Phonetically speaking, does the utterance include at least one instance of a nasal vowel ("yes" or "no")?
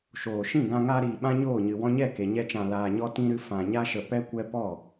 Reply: yes